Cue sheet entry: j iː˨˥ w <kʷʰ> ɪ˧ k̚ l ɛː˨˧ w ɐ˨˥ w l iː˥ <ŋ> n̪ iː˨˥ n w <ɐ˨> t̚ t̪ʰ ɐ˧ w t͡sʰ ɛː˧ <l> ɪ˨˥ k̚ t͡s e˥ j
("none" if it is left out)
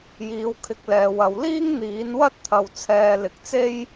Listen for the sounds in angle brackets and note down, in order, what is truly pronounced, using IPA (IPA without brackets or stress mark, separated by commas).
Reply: kʰ, ŋ, ɐ˥, l